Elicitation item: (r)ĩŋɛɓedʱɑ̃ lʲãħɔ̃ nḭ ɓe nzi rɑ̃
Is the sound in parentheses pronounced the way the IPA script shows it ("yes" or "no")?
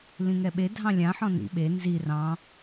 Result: no